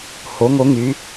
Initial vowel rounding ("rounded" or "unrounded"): rounded